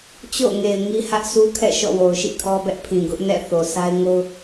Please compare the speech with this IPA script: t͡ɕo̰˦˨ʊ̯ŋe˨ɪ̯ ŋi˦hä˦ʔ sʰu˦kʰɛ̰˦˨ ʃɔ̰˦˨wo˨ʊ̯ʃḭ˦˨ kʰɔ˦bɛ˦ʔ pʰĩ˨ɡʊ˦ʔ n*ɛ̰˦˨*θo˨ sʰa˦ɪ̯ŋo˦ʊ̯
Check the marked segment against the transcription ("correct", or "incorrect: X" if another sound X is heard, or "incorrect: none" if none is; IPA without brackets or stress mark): correct